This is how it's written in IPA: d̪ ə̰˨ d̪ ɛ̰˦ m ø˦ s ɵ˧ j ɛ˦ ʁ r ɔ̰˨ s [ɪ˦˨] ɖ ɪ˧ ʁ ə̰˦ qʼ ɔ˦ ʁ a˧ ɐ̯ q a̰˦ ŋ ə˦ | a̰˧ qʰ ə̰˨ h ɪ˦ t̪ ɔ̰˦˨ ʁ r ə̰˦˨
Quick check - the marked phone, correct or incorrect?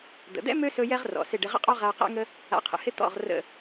correct